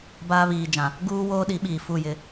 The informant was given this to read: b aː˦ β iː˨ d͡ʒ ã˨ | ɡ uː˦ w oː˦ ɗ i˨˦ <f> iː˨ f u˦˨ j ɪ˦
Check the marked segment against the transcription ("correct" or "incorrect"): incorrect